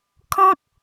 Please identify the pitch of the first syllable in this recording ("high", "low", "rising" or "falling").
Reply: high